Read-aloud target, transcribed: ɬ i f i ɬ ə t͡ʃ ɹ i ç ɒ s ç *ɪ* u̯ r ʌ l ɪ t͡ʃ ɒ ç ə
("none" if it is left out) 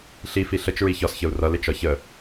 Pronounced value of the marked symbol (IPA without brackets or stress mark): ə